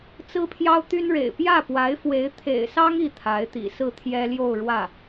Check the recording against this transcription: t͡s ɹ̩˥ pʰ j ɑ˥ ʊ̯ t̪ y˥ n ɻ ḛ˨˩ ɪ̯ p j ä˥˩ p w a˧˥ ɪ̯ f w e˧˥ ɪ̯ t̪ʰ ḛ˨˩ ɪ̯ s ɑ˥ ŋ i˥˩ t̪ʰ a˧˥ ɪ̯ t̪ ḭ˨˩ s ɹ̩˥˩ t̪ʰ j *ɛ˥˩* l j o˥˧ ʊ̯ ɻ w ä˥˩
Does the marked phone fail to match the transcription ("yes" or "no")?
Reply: yes